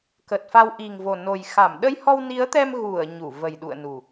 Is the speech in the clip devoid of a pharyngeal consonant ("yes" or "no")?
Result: yes